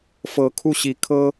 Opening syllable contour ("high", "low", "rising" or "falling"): rising